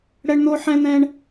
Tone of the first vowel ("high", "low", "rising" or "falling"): high